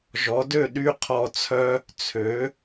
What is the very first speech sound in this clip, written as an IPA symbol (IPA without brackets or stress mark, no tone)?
ʒ